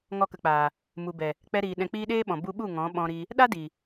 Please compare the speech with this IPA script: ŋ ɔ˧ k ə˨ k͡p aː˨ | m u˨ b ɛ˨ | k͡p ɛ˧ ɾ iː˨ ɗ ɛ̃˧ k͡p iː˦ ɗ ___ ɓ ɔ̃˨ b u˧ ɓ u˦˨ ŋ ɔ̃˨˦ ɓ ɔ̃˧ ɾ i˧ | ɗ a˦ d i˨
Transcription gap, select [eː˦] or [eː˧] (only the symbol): eː˦